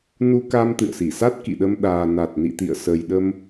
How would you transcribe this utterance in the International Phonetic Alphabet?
n u˧ k a˧ m t̪ ɨ̰˧˨ ə̯ s i˧˩ s a˦˥ t̚ k ḭ˧˨ ɗ ə˧ m ɗ aː˨˩ n a˨˩ t̚ n ḭ˧˨ t̪ ḭ˧˨ ə̯ s ə˨˩ j ɗ ə˧ m

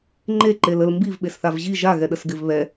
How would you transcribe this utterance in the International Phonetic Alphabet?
ŋ͡ǃ e ǃ e l ə l m b i v ɓ e s θ a v ʑ i ʒ a ɣ ɛ ɗ ə s ɡ ɪ v β ɛ

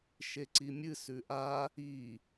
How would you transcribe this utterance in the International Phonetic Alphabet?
ʃ e ǀ i mʲ ɨ s ʉ ʔ a | i

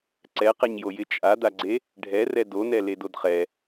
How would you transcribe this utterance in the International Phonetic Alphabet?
ǀ ɛ q ɛ ɲ j o j ɪ t͡ʃʼ a d̪ a ɡ͡ǀ e | ɖʱ ɛ r ɛ d o n ɛ l e d o d χ ɛ

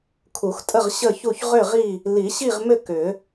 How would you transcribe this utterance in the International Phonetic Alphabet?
kʰ u˨˩˦ x tʼ ə˥˨ ʁ ɕ ə˥˨ ç u˥˨ ç ʁ ʏ˥˨ ʁ i˥˨ | l i˨˩˦ ɕ i˥˨ ʁ m ʏ˥˨ k ʏ˨˩˦

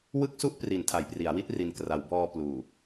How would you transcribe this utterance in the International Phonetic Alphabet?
w ɯ˥˩ k̚ s u˥˩ ʔ p r i˩˦ n tʰ a˩˦ j p r i˩˦ a̯ w i˦˥ t̚ r i˨˩ n k r a˩˦ w b ɔː˧ p l uː˨˩

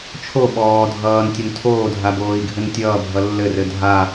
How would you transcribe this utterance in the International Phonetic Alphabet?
t͡ʃʰ o ɓ ɔː dʱ ʌː n tʲ ɘ n tʰ oː dʱ a b oː i̯ ɡʱ ɘ n tʲ ʌː bʱ ʌ lː ɘ r ɘ dʱ a

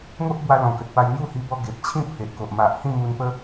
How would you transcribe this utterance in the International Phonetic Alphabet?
ŋ o˦ ʔ b w a˧ l ɔ̃˨˩ k ə˨ t̚ p a˧ j n̪ j u˥˧ h i˧ b ɔ˧ ɡ e˨ p̚ t͡ɕʰ ĩ˥˧ pʰ e˨ ʔ k o˨ ʔ m a˨ ʔ h ĩ˥˧ m u˧ n p ə˦

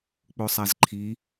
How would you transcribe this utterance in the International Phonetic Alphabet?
k͡p o sˤ a z ǃʰ i

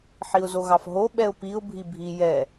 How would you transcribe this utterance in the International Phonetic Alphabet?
ħ i ʊ̯ z o ɣ ɑ f ɦ o ɓ ɛ ʊ̯ p i ʊ̯ bʱ i bʱ i j ɛ

